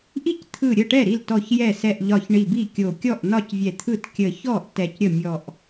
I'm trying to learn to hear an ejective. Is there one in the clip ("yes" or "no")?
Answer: no